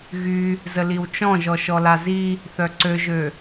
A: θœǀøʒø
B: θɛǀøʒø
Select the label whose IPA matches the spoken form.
A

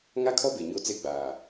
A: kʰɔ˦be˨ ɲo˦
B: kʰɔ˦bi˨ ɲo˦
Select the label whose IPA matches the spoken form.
A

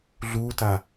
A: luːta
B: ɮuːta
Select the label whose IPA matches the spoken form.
B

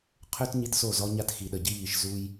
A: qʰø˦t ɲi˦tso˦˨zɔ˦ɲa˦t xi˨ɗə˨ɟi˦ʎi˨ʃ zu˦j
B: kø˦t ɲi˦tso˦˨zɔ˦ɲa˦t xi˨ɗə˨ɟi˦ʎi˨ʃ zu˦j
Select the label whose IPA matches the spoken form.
A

